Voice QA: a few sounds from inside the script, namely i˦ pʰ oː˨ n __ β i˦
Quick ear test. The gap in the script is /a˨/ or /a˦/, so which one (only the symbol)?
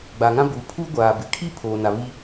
a˨